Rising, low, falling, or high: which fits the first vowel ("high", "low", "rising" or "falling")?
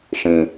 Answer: low